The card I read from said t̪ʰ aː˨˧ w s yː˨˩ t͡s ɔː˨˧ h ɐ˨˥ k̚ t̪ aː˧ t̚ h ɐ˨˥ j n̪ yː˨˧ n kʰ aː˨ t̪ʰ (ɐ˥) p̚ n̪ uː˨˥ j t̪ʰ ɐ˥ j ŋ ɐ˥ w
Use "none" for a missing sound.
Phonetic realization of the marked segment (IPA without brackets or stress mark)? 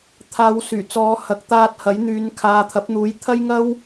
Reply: ɐ˨˥